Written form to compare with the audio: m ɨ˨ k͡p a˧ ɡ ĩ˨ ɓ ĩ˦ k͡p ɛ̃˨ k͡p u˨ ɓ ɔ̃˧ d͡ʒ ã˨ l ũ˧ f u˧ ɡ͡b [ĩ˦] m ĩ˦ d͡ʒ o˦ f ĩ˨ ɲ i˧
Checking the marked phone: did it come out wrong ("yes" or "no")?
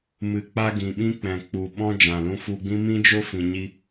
no